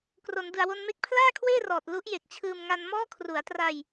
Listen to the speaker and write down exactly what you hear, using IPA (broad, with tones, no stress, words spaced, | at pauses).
kro˩˦ndɯ˨˩a̯wo˧nme˦˥k̚ pʰlaː˥˩kʰweː˥˩rɔː˨˩t̚ lu˦˥ʔje˨˩k̚t͡ɕʰɯː˧m ŋa˧nmɔː˥˩ kʰru˩˦a̯tra˧j